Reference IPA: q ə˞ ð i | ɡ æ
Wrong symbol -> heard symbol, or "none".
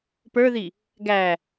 q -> p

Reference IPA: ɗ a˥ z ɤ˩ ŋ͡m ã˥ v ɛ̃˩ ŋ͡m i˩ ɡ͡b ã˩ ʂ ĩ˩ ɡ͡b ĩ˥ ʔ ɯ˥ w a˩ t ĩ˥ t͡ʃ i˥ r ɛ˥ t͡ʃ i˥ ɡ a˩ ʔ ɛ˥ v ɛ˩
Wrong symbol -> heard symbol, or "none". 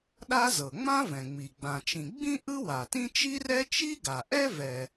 ʂ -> t͡ʃ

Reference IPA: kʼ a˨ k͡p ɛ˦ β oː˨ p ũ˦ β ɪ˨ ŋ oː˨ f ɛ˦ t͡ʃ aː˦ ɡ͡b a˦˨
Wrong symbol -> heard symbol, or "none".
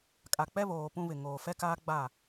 t͡ʃ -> k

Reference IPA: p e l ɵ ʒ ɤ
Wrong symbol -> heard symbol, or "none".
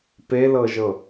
ɵ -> ɤ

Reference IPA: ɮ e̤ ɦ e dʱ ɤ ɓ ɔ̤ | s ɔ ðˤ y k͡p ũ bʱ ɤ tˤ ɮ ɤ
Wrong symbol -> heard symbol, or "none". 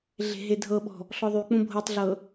s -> ɬ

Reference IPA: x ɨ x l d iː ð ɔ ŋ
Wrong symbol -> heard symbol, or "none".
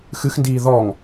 l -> n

